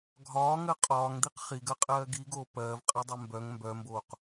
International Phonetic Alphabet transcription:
ɡʱ ɒː ŋ ɜ qʼ ɒː ŋ d̪ i q χ i ɡ ɜ qʼ ɜː ɡ i ɡ oː p ɜː v qʼ ɜ dˤ ɛ m b œ ŋ m b œ m b oː q

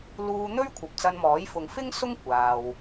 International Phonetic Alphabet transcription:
l uː˧ n̪ ɵ˥ ɥ kʷʰ ɐ˨ p̚ t͡s ɐ˧ n m ɔː˨˥ j f ʊ˨ ŋ f ɪ˥ ŋ s ʊ˥ ŋ kʷ aː˨ w

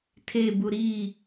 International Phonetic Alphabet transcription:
tʰ e b u ɾ i

